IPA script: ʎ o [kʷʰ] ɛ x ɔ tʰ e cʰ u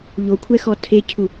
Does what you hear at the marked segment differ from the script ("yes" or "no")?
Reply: no